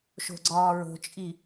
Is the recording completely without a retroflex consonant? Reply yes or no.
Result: yes